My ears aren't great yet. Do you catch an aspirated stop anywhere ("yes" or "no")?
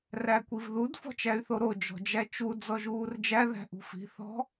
no